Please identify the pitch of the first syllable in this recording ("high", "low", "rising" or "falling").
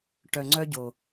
low